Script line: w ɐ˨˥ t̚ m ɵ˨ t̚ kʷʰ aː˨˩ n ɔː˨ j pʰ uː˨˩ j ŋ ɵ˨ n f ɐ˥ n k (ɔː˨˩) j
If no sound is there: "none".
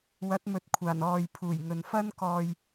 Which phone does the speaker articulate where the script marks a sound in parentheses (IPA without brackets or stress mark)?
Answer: ɔː˧